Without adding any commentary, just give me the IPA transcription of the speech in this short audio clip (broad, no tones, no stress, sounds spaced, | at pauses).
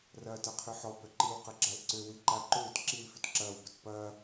r ɐː t ɐ qʰ œ ħ ɔ b œ ǃ i w q ɐ ɡ͡ǁ a l ǀ ø w i ǃ a ǃ ʏː t ǁ i l f ʏ t ǁ ɐː w b ə t p ɐː